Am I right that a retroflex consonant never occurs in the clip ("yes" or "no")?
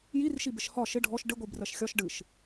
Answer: no